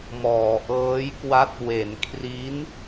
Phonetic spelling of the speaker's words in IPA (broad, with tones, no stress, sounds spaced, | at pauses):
m ɔː˩˦ ʔ ɤː˦˥ j k w a˦˥ t̚ w e˩˦ n kʰ r i˦˥ n